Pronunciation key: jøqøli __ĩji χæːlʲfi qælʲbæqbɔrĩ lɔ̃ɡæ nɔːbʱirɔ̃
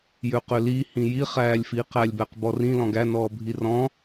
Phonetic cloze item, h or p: h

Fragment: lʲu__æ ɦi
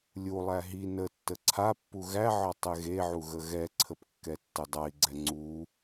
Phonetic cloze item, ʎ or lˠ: lˠ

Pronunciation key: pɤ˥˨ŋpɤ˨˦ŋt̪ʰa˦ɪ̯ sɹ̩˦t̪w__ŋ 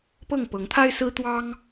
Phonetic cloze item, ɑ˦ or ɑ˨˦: ɑ˦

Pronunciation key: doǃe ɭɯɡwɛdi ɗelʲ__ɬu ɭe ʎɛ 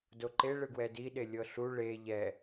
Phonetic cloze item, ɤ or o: ɤ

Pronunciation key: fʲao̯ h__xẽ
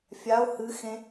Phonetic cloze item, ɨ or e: ɨ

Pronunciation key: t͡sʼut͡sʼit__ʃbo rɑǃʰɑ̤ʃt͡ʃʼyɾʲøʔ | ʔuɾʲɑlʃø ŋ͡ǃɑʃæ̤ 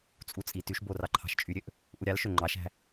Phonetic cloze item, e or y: y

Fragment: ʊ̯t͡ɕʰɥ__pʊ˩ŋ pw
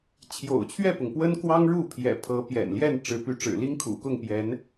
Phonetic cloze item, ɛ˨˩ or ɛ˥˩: ɛ˥˩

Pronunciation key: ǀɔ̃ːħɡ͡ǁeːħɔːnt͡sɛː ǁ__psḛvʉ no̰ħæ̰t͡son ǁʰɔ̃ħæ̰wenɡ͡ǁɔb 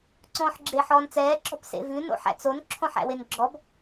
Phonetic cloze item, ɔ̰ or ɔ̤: ɔ̤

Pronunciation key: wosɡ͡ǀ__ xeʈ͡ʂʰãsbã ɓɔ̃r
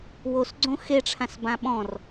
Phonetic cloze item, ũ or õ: õ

